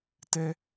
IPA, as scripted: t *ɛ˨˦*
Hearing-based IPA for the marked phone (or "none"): ɛ˦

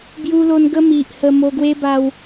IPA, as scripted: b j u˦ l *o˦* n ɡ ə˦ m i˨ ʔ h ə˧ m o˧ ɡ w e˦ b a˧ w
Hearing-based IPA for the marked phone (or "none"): o˦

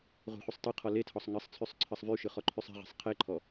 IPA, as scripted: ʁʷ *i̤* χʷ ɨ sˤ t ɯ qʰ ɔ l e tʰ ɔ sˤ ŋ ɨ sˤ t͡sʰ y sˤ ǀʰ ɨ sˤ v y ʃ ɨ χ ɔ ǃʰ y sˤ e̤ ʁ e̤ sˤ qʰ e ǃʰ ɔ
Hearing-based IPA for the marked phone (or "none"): e̤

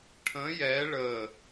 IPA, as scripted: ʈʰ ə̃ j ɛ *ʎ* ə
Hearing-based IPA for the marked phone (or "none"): ɭ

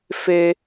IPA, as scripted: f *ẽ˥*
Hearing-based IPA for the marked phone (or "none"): e˥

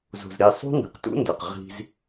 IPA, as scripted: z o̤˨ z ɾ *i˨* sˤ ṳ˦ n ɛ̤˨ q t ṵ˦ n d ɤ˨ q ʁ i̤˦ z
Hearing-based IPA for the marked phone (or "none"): i˨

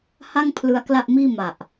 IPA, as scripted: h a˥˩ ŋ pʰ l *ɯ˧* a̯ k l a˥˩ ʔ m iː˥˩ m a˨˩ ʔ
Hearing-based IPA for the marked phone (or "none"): ɯ˦˥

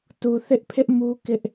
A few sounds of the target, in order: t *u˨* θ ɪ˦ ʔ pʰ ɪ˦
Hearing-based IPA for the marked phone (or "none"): u˨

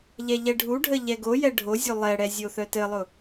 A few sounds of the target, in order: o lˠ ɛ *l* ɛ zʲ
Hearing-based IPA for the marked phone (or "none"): ɽ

